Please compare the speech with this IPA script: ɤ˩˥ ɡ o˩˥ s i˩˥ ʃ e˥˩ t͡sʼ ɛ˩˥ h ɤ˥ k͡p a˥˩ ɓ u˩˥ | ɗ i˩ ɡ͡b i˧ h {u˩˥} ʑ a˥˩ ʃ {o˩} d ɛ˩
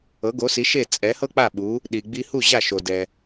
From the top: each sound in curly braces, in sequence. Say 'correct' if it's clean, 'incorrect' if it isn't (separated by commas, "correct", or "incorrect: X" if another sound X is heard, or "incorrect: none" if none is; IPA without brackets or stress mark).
incorrect: u˥˩, correct